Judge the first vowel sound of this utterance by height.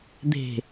mid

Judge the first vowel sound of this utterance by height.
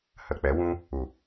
mid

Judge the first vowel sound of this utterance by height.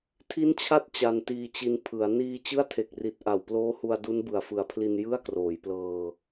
high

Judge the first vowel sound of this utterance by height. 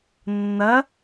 low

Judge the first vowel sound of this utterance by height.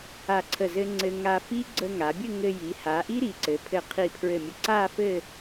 low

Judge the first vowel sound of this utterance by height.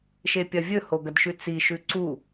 mid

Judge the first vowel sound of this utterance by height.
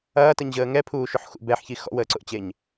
low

